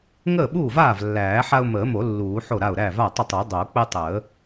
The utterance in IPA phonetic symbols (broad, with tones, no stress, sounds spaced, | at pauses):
ŋ əː˥˩ ɓ uː˥˩ v aː˥˩ v lː æː˨˩˦ ħ a˦ ʊ̯ m əː˨˩˦ m o˨˩˦ lː uː˨˩˦ ħ o˥˩ ɾ a˥˩ ʊ̯ ɾ æ˥˩ v a˥˩ tˤ ə˥˩ tˤ ə˨˩˦ dˤ o˨˩˦ k͡p ə˦ tˤ əː˨˩˦